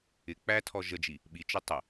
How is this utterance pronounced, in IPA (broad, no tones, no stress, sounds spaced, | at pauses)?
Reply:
ɪ k͡p æ tʰ ɔ ʒ ə d͡ʒ i | ɓ i t͡ʃ ʊ tˤ ə